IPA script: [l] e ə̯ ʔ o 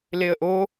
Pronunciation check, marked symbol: correct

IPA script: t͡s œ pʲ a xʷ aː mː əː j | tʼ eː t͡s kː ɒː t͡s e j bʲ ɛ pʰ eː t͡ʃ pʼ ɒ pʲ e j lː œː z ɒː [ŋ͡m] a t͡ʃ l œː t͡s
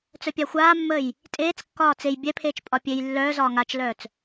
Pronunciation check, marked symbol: incorrect: ŋ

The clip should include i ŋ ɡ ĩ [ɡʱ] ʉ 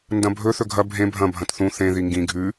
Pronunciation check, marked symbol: correct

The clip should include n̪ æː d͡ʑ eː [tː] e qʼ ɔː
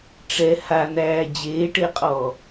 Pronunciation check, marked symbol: incorrect: ʈ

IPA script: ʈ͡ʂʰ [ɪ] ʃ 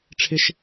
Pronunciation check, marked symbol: correct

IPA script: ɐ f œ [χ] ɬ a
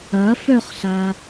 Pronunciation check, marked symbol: correct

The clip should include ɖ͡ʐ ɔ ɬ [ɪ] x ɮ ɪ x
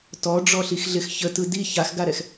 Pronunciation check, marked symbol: incorrect: i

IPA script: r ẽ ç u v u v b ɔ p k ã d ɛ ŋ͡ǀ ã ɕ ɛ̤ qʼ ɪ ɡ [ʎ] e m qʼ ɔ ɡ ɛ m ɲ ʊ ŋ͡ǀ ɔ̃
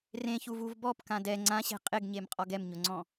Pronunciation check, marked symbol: incorrect: ɲ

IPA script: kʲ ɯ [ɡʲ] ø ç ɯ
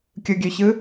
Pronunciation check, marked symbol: correct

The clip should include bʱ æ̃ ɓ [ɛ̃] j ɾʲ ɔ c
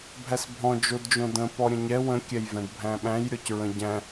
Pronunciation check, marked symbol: incorrect: æ̃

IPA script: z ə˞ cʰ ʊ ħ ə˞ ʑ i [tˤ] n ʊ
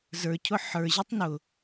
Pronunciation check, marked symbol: correct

